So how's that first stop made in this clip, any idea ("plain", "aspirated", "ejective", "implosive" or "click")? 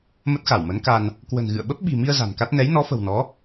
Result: plain